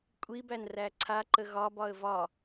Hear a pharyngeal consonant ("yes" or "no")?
no